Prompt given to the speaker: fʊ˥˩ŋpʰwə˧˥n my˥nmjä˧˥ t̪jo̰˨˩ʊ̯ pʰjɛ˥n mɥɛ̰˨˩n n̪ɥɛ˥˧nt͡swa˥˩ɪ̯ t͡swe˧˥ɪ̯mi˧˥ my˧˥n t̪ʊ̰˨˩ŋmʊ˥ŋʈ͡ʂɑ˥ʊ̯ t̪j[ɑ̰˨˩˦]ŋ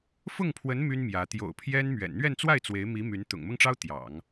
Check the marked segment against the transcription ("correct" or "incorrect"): correct